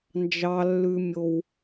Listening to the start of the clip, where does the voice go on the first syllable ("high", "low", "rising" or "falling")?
high